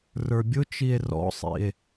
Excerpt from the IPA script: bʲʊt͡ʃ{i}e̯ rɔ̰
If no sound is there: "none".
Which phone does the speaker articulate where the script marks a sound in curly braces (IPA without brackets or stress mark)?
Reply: i